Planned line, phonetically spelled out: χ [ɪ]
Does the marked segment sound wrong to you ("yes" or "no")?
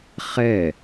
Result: yes